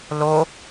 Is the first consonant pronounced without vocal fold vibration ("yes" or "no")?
no